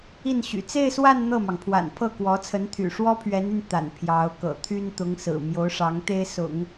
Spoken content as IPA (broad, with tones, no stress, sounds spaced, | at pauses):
i˥˩ n ɕ y̰˨˩ t͡s e˥˧ ɪ̯ s w a˥˧ n n̪ ɤ˥˩ m ɑ˩ ŋ pʰ w a̰˨˩ n pʰ ɤ˥˩ k w ɔ˧˥ t͡sʰ ə˧˥ n t̪ʰ y̰˨˩ ʂ w ɔ˥ pʰ ɥ ɛ˧˥ n y˧ n t̪ a̰˨˩ n pʰ j ɑ˧˥ ʊ̯ k ɤ̰˨˩ t̪ʰ y˥ n t̪ ʊ˧˥ ŋ s ɹ̩˨˩ m j o˧˥ ʊ̯ ʂ ɑ˧˥ ŋ t̪ e˥ ɪ̯ s ʊ̰˨˩˦ ŋ